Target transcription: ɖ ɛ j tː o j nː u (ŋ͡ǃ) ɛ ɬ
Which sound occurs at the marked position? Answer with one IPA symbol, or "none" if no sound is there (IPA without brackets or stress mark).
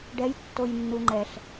ŋ͡ǃ